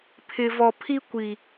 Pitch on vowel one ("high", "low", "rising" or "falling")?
low